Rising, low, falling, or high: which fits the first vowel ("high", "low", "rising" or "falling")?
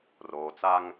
low